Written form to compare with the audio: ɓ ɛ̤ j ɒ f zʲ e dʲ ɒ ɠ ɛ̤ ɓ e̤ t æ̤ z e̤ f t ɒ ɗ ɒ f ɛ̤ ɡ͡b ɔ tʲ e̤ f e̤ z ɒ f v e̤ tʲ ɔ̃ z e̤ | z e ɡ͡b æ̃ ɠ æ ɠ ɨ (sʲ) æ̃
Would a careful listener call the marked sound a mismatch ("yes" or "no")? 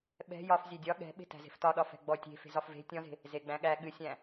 no